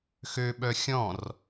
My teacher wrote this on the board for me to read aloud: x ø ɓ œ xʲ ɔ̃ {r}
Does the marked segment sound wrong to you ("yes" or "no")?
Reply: no